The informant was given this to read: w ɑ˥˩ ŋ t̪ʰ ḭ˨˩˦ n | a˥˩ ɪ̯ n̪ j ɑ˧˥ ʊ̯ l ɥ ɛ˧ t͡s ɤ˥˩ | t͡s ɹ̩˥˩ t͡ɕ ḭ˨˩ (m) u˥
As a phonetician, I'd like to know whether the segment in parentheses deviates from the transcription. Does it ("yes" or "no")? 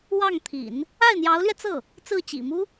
no